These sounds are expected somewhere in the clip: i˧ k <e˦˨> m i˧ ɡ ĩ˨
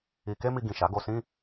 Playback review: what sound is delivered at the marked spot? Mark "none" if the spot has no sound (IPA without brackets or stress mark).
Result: e˦